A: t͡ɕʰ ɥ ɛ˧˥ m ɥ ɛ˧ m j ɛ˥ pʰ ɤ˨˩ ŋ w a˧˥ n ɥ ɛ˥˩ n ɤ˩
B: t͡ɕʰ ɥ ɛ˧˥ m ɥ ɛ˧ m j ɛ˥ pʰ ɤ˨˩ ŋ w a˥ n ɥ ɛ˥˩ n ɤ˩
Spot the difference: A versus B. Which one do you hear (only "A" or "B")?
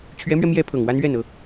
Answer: B